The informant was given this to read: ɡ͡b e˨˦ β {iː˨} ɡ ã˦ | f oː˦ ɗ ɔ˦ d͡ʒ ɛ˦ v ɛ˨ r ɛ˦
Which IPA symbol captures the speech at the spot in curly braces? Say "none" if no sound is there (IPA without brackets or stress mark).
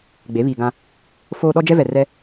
iː˨